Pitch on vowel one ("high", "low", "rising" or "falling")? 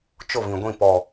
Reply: falling